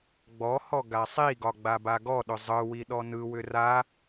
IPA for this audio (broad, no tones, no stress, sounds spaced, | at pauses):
ɡ͡b ɔ h ɔ ɡ a sˤ i ɡ ɒ ɡ͡b a b a ɡ ɔ ɗ ʏ zˤ ɯ w i ɗ ɔ n ɯ w ʏ r a